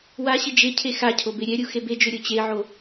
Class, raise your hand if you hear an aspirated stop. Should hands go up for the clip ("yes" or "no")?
yes